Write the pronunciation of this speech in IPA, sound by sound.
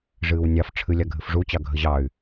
ʐ ɨː w nʲ ɑ f ʈ͡ʂʰ ɨ lʲ a ɡʱ ɨ f ʐ u t͡ɕ ɑ ɡʱ ə ʑ ɑ y̯

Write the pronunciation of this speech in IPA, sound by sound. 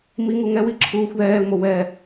m i ŋ u ŋ ɛ w i ǁʰ uː xʷ ð ɛː l m o w ɛ

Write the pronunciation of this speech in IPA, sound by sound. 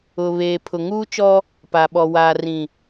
ʊ˨ β eː˨ pʰ ʊ˨ ŋ uː˦ t͡ʃ ɔ˦ | p a˨ ɓ ɔ˨ w aː˨ r ĩ˨

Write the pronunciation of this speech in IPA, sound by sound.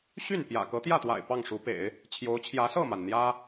ɕ y˥˩ n p j ä̰˨˩ k ɤ˧˥ t̪ j ä˥˩ t̪ w a̰˨˩ ɪ̯ p ɑ˥˩ ŋ ʂ u˧˥ p ḛ˨˩˦ ɪ̯ | t͡ɕʰ j o˧˥ ʊ̯ t͡ɕʰ j ä˧˥ s ɤ˥˩ m a˩ n n̪ j ä˥

